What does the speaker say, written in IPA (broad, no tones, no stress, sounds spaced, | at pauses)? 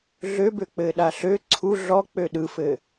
ɮ ø b ø k͡p ɘ ɗ a ɬ ø ǀʰ u ɮ ɔ k͡p ø ɗ ɯ f ɘ